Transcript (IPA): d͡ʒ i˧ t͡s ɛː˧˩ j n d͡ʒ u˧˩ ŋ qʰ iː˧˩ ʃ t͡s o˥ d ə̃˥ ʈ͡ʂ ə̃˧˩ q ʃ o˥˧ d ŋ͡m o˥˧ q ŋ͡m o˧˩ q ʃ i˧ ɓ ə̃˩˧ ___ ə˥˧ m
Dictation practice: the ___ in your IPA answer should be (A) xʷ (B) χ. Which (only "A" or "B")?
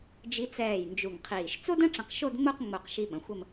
A